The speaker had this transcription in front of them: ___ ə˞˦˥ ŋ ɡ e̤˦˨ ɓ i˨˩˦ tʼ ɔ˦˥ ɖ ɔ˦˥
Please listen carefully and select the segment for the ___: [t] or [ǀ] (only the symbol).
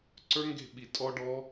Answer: ǀ